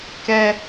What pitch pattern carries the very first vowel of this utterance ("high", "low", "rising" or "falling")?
high